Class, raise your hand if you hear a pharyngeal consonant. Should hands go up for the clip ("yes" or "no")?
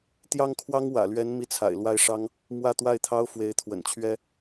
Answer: no